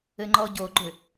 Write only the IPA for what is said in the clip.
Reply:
ɘ ŋ͡ǃ ɔ ɟ o ɡ͡ǃ ʏ

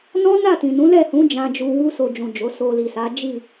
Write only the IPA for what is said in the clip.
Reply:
n ɔ̃˦ n a˦˨ t ĩ˨ n ũ˨˦ l ɛ˦˨ h ũ˨˦ d͡ʒ ã˧ d͡ʒ u˧ w u˦ s o˧ d͡ʒ ũ˨ d͡ʒ o˨˦ s o˧ l i˨ s a˨˦ d͡ʒ i˦˨

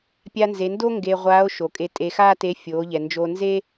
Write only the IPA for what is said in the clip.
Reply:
pʲ a˧ n z e˩˧ n d o˥ ŋ ɡ e˧ ʁʷ aː˧˥ o̯ ʃ o˩ kʼ e˧ tʼ e˧ x aː˥ t e˧˥ fʲ oː˩˧ ʎ ɛ˩ n d͡ʒ o˧ n z e˥

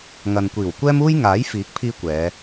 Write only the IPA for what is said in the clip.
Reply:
ŋ ɐ˨ n kʷ iː˨˩ w kʷ ɛː˥ m uː˥ j ŋ aː˨˥ j f iː˨˥ k̚ pʰ iː˧ kʷ ɛː˨˧

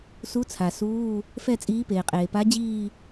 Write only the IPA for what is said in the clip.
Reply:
s u˧˥ t͡sʰ a˩ s uː˧˥˧ | f ɛ˥˧ t͡sʼ iː˧˥ p eː˩ qʼ eː˩ p a˧˥ d͡ʑ iː˥˧

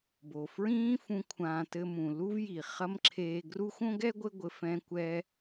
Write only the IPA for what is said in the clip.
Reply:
b o˨ f ɹ ĩː˦ f ũ˧ kʷʰ ãː˧ t ɘ˧ m ũ˨ l u˦ v j i˨ χ ɐ˦ m ǁʰ eː˧ ɡ r u˦ xʷ õ˦ ɡ ɛ˦ ɡʷ ɘ˦ ɡʷ ɘ˧ f ɛ̃˦ kʷ ɛ˦

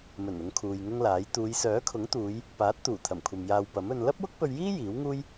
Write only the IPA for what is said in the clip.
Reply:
m ɵ˨˩ n ʊ˨˧ ŋ kʰ uː˨ j ŋ ʊ˥ ŋ l aː˨˥ j t̪ uː˨˧ j s œː˨˥ kʰ ʊ˨˥ ŋ t̪ uː˨˧ j | p aː˨˥ t̚ t̪ uː˨˩ t̪ʰ ɐ˨˩ m kʷʰ ɐ˨ m j aː˨ w p ɐ˨˥ m ɵ˧ n l ɐ˥ p̚ w ʊ˥ k̚ p ɵ˧ ɥ j iː˥ j iː˨˥ w ŋ uː˥ j

